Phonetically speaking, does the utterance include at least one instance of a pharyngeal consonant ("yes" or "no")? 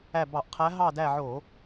yes